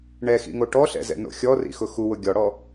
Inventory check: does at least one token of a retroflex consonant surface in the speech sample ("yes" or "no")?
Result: yes